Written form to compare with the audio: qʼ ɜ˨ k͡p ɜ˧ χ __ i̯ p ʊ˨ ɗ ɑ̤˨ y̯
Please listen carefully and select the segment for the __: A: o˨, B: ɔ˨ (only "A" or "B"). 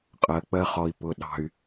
B